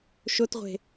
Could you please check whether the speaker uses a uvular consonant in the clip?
yes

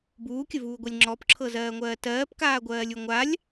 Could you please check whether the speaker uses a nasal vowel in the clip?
no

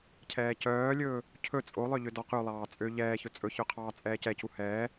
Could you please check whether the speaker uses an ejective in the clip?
yes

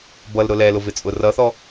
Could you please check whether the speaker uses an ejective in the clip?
yes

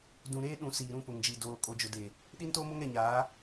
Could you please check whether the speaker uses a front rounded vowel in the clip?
no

